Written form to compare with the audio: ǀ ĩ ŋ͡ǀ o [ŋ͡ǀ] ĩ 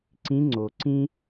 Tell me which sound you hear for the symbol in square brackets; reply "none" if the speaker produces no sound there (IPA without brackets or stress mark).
ǀ